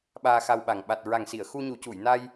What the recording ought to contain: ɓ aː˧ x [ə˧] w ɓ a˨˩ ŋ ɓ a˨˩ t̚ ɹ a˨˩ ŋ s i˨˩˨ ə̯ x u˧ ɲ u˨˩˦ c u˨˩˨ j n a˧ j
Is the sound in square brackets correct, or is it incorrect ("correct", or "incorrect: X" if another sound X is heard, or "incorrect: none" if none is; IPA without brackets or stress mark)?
incorrect: a˧